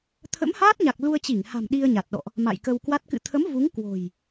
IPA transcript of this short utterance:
t̪ʰ ə̰˧˥ m h aː˦˥ t̚ ɲ a˨˩ k̚ l u˧ ə̯ t͡ɕ i˧˩ ŋ h a̤˨˩ m ɗ i˧ ə̯ ɲ a˨˩ t̚ ɗ ɔ̰˧˨ ʔ | m a̰˧˨ j k ə˧ w k w a˦˥ t̚ k ɨ̰˧˨ t̪ʰ ə˨˦ m v u˨˦ ŋ k w o̤˨˩ j

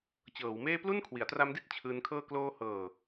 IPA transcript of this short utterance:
t͡ɕ ɤː˩˦ w m eː˥˩ p l u˥˩ n kʰ w i˩˦ a̯ t r a˦˥ m d i˥˩ t̚ t͡ɕʰ ɯː˧ n kʰ ɤː˥˩ k l oː˧ h ɤː˨˩

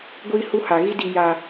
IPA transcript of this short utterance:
ɡʷ iː˦ h u˦ h a˨ ɣ i˦ d i˦ j aː˦

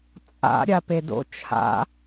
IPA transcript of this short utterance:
t͡sʼ a̰ ɾʲ a p e d o̰ t͡ʃʰ a̰

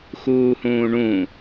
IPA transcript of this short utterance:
x uː h ũː ɳ ũ

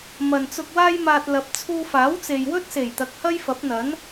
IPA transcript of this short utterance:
m ɐ˨ n t͡s ʊ˧ k̚ w aː˥ j m aː˧ t̚ l ɐ˨˥ p̚ t͡sʰ uː˧ f aː˨˥ w t͡s e˨ j w ɵ˥ t̚ s e˨˩ j t̪ ɐ˨ k̚ h ɐ˥ j f ɐ˨˥ p̚ n̪ ɐ˨˥ n

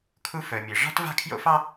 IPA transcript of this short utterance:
kʰ u˥ f œ˨ mʲ e˨ ʐ ɑ̤˥ t v a̤˥˩ kʰ j o̰˥ f ɑ˥

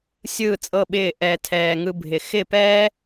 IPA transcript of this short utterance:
sʲ ɯː˦˨ t͡sʼ ɤ˦˨ ɓ ɪː˦˨ ʔ ɛː˧ tʰ ɛː˧ ŋ ɯ˦ bʱ ɪ˧ x ɪ˦˨ p ɛː˦

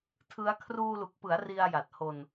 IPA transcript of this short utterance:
tʰ ɯ˦˥ a̯ kʰ r uː˧ l u˨˩ k̚ p ɯ˩˦ a̯ r i˧ a̯ j a˨˩ t̚ h o˧ n

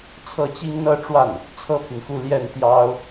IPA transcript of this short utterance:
t͡sʰ ɤ˥˩ t͡ɕ i˥ ŋ n̪ ɤ˥˧ ʈ͡ʂ w a˥˩ n | t͡sʰ ɤ˥ pʰ y˨ n x u˥˧ l j ɛ˥˩ n t̪ j ɑ˥ ʊ̯

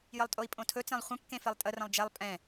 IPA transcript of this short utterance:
j ə lˠ tʼ o i̯ pʼ õ tʰ ɵ t͡s ẽ lˠ χʷ ə̃ kː ẽ f e lˠ tʼ ə r ə̃ lˠ d͡ʒ ɛ lˠ pʼ ɛ̃

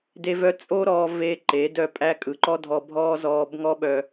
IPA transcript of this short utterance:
d e˦ v œ˦ t͡sʼ o˦ ɾ ɔː˧ v e˦ ǃ e˨˦ d œ˦ pʼ æ˦ kʼ ɯ˨ ǃ ɔ˦ dʱ ɔ˧ bʱ ɔː˦ z ɔː˧ b ŋ ɔ˦ ɓ œ˧

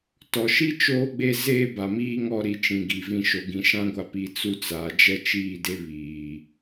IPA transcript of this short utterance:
t ɔ˨ ʃ i˦ t͡ʃ oː˦ ɡ͡b e˦ z eː˦ b a˨ m iː˦ ŋ ɔ˦ ɾ i˨ t͡ʃ ĩ˨ ɡ i˨ v ĩ˨ ʃ o˨ ɡ ĩ˨ ʃ ã˦ ɡʷ a˨ p i˨ t͡s u˦ t͡s aː˨ d͡ʒ ɛ˦ t͡ʃ iː˦˨ d e˦ β iː˨

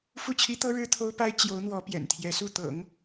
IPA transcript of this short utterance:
f u˥˩ t͡ɕʰ i˥ t̪ ɤ˥ ɻ ɻ̩˥ t̪ʰ o˥ ʊ̯ p a˥ ɪ̯ t͡ɕ j o˧˥ ʊ̯ n̪ w ɔ˧˥ p j ɛ̰˨˩ n t̪ʰ j ɛ˧˥ s u˥˩ t̪ ɤ̰˨˩˦ ŋ

